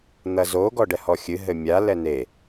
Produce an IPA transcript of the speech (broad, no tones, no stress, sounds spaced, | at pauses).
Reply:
n̪ ɐ z o ɡ ɔ ɖ ɛ h ɔ xʲ ɨ ɦ ɘ mʲ a l ɛ n e